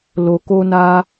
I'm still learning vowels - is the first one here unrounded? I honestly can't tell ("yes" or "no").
no